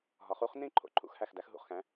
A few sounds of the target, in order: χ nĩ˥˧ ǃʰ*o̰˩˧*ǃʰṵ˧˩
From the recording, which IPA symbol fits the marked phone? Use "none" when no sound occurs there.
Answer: o̰˩˧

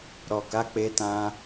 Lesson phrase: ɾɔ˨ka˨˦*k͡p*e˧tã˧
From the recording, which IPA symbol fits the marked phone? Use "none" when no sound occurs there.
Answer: k͡p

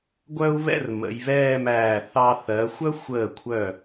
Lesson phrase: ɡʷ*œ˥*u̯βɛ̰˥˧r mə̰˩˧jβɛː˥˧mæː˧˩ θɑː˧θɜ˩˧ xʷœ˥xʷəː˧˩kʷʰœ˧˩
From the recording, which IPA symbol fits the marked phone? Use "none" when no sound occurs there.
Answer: œ˥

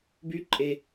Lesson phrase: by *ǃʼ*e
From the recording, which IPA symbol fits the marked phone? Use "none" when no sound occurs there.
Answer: ǃʼ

